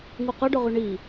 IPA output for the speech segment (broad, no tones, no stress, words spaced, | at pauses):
ŋuqʌɖɵʁy ɳi